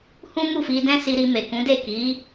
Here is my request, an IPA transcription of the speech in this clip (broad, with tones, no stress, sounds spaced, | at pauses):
h ũ˦ m u˦˨ f i˧ d ɛ̃˦ s i˧ ɾ i˧ m e˨ k ũ˨˦ d e˦˨ k i˨˦